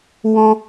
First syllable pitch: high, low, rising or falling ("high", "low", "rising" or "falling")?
high